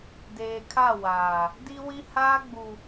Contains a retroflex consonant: no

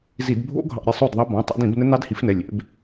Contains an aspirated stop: no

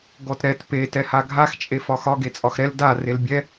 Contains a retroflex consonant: no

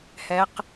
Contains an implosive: no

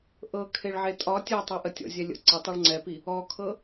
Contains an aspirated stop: yes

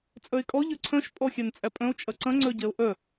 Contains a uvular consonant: no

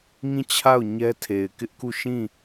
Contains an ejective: no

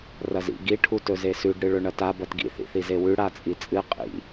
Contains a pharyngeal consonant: no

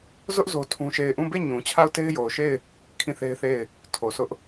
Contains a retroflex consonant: no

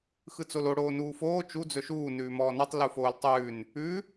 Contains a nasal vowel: no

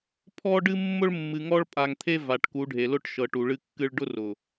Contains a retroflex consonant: yes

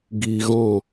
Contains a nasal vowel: yes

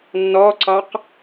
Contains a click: yes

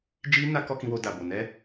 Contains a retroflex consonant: no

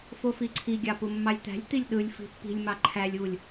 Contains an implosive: yes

